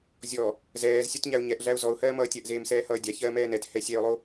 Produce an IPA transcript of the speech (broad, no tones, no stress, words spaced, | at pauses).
zʲɔ | zɛːzsʲotɲæʊ̯ ɲɛʔɮæʊ̯ zɔʊ̯hɜːmʌː tʲɜʔzeːmsɛːhʌː dʲaçɜːmɛː nɛthɛ sʲɛʊ̯lˠo